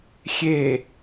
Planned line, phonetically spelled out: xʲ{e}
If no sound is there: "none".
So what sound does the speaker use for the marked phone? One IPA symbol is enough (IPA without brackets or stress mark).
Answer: e